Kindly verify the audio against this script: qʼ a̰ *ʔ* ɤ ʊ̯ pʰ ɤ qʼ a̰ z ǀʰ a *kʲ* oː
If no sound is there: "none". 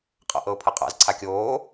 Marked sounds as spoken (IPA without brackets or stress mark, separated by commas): ʔ, kʲ